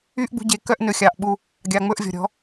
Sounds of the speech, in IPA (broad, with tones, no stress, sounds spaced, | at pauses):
y˦ ʔ ɡ͡b ṳ˧ ɟ e˨˦ k œ˧ ʔ n ɵ˨ xʲ ɑ˨ ʔ ɓ u˧ | ɡʲ ɑ˨ ŋ͡m ɵ˧ ʔ vʲ ɔ̤˨ ɾʲ ɔ̤˨˦